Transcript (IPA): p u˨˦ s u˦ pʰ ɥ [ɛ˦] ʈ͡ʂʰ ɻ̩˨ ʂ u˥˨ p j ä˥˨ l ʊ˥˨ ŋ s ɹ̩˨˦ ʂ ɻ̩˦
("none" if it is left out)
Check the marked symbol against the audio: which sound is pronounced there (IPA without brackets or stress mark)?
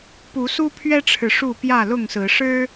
ɛ˦